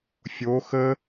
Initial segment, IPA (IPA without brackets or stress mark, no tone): fʲ